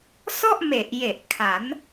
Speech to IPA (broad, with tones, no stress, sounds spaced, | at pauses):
s ɔ˥˩ ʔ m e˨˩ ʔ j e˨˩ ʔ kʰ a˩˦ n